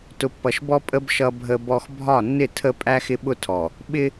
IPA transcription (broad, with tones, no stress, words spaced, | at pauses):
tʊ˨pːʌ˨ʃbɔ˦ pʼə˦b ʃʌ˦bʱə˦bɔ˦x bʱɒ˦˨nːɪ˦˨tʰə˦ pʼæ˦xɪ˦ɓʊ˦tʰɔ˨ | ɓɪ˦